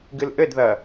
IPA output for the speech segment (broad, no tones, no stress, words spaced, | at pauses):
ɡɨlʔɘdðɐ